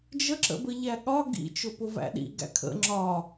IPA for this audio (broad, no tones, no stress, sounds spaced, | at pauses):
d͡ʒ ə ǁ ə̰ b ə ʎ æ ɠ ɒ ɡ ḭ t͡ʃ ʊ p ʊ v æ̰ ɗ ḭ ɡ æ̰ kʰ ə̰ ŋ͡ǁ ɒ